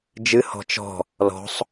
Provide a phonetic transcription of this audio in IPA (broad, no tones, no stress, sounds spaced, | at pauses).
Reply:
d͡ʒ ɨ h ɔ̤ t͡ʃ ɔ̤ | l ɔ̤ sˤ